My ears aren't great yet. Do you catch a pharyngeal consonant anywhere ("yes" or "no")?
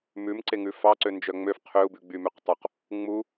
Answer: no